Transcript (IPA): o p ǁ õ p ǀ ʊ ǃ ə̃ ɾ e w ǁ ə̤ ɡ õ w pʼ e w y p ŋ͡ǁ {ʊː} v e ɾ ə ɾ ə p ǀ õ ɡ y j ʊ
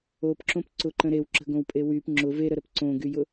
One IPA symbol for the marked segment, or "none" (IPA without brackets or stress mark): ʊ